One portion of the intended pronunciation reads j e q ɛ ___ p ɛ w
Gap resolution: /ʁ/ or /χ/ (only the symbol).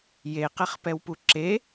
χ